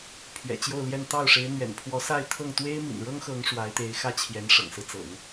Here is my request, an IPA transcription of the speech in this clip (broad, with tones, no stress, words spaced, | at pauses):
pʰɥɛ̰˨˩ t͡ɕjo˥˧ʊ̯ljɛ˥˧n t̪ɑ˥˩ʊ̯ʂe˧˥ɪ̯ n̪ɥɛ̰˨˩npʰwɔ˧˥sa˥˧ɪ̯t̪ʰɤ˥˩ŋ t̪we˥ɪ̯mḭ˨˩nɻɤ˥ŋxɤ˧˥ŋ ʂwa˧˥ɪ̯t̪e˧˥ɪ̯xä˥t͡ɕʰjɛ˧˥n ʂɤ̰˨˩ŋsɹ̩˦t͡sɤ̰˨˩˦ŋ